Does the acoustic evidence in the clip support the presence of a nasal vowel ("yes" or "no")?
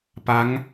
no